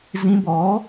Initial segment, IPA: z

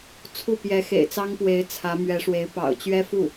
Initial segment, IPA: t͡sʰ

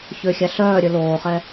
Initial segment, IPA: ç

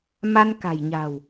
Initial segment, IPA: m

